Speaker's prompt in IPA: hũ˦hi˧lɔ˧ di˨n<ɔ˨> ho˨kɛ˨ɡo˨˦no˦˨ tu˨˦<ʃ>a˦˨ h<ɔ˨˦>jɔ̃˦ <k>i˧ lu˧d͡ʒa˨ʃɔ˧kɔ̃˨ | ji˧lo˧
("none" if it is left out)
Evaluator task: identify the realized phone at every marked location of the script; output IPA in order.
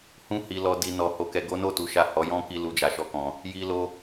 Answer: ɔ˨, ʃ, ɔ˨˦, k

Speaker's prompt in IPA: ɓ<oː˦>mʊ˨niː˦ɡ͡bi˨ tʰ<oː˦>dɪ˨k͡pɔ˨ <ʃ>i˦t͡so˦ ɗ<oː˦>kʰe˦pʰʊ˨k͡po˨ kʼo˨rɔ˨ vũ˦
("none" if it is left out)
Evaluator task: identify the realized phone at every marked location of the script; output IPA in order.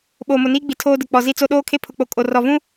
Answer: oː˨, oː˦, z, oː˦

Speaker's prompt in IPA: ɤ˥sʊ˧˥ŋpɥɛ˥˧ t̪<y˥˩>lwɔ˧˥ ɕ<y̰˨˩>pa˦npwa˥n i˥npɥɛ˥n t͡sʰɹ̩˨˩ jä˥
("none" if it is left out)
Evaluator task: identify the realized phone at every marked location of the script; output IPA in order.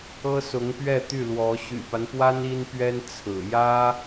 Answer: y˥˩, y̰˨˩

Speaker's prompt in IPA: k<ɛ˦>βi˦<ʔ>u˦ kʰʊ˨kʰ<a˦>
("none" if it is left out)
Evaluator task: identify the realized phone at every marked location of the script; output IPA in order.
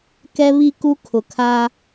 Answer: ɛ˦, k, a˦

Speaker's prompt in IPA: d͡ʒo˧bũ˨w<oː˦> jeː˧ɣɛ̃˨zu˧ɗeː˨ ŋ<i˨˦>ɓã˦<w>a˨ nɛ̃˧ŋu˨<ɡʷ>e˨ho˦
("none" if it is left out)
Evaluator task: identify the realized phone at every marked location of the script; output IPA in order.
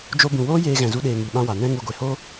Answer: oː˦, i˨, w, ɡʷ

